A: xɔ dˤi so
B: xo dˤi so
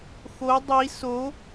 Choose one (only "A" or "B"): B